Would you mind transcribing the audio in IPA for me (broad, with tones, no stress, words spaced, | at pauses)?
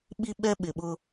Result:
ɓi˦ɓɛ˦ ɓɪ˨ɓʊ˦